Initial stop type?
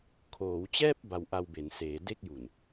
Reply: aspirated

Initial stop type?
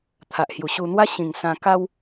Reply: aspirated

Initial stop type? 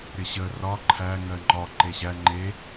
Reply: click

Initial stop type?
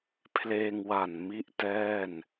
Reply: aspirated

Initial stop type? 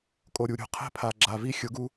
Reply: ejective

